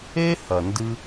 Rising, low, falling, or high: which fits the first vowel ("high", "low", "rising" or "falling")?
high